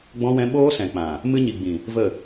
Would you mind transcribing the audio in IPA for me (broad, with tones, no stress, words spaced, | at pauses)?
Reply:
ɡ͡bɔ̃˧wɛ̃˧ ɓoː˦sɛ̃˨k͡pã˨ | mɨ˧ɲi˨ɡ͡bĩ˨ | və˦˨